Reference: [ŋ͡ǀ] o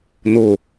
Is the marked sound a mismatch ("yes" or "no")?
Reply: yes